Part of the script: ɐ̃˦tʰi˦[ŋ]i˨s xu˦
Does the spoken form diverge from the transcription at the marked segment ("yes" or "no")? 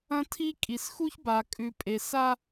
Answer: yes